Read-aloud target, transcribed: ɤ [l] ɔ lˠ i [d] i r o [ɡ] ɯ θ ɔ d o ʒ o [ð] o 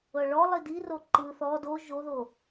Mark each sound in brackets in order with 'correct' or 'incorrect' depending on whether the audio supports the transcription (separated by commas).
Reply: incorrect, correct, incorrect, correct